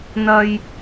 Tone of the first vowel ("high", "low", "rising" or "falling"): high